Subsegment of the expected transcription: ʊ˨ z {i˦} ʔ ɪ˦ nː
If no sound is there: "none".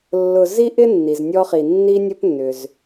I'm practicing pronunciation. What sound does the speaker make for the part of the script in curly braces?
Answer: i˦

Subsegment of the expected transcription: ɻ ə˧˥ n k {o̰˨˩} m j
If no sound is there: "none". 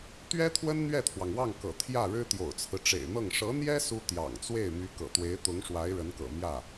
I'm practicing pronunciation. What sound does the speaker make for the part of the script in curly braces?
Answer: ɤ̰˨˩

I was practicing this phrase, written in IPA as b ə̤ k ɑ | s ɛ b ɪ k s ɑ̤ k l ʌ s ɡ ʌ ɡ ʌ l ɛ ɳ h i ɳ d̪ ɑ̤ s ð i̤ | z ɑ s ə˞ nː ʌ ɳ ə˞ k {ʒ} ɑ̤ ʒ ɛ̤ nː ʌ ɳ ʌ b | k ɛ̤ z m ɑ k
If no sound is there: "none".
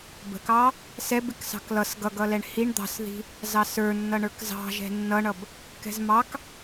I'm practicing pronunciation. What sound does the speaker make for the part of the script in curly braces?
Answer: z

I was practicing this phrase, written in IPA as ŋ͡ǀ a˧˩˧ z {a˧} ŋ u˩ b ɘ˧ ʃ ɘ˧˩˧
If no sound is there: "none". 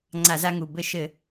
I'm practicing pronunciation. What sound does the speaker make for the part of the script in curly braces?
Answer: a˧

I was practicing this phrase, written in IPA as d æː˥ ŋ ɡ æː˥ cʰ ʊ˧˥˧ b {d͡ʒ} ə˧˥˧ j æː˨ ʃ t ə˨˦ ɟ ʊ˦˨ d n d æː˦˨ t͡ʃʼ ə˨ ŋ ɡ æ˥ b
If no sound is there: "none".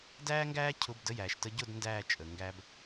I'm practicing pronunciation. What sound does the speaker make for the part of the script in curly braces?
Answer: d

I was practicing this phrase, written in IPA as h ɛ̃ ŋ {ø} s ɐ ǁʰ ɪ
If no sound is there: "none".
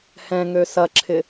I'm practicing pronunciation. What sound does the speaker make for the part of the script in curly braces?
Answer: ø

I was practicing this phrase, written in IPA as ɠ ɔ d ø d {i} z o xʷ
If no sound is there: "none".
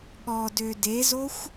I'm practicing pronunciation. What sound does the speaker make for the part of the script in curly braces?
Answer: e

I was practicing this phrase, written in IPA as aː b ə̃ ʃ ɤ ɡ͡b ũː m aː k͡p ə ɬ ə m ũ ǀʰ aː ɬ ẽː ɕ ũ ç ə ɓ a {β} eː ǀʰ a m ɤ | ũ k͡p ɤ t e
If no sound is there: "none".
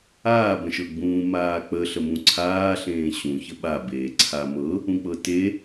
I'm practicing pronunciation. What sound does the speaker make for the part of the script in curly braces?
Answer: b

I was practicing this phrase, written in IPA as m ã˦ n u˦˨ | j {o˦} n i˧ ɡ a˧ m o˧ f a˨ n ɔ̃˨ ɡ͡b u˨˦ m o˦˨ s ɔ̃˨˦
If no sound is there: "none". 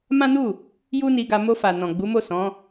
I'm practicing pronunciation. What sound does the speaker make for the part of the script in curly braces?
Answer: u˦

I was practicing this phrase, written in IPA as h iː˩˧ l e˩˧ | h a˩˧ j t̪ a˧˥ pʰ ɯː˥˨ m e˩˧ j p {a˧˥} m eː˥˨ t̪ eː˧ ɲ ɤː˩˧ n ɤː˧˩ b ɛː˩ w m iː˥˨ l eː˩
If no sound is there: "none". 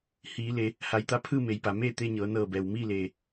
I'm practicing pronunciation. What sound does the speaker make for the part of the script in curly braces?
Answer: a˩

